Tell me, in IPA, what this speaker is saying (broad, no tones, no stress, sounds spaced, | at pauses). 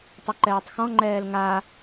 tˤ ʊ ǃ ɛː tˤ x ɔ̃ ŋ͡ǃ ɛː l ŋ a